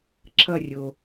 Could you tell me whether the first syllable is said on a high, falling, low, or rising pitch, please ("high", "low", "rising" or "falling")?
falling